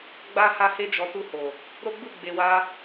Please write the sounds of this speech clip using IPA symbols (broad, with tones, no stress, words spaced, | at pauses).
ɡ͡ba˦ ha˧he˧d͡ʒɔ˨ tu˧ho˨ | ɾo˦ɡ͡bu˦˨ ɡ͡be˨ wa˧